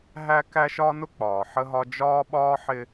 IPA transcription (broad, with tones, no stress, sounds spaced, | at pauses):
ɦ æ˦ k æ˦ ʃ ɒ˦ n ʊ˦ k͡p ɒː˨ ħ ə˦ ɦ ɒ˦ d͡ʒ ɒː˦ ɓ ɒː˦ ħ ɪ˦